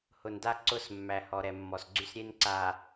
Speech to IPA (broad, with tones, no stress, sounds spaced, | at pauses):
h ʊ˨ n d a˦ ǀ ʊ˦˨ s mː æ˨ h ɔ˨ ɾ ɛ˨ mː ɔ˨ s ɡ͡ǀ y˦ s ɾʲ e˦ n ǀ a˨